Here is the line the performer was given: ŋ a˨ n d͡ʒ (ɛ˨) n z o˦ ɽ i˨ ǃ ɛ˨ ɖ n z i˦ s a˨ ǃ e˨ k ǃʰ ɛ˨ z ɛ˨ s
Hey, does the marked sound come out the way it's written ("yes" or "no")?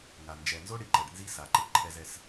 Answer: yes